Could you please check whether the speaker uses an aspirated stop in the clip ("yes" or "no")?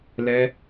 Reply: no